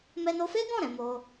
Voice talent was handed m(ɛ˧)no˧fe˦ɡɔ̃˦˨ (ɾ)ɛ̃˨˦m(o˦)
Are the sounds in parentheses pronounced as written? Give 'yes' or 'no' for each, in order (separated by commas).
yes, yes, yes